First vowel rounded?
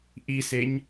no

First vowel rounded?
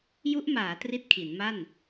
yes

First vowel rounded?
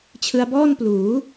no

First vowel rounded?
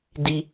no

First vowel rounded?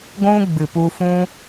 yes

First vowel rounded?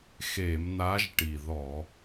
no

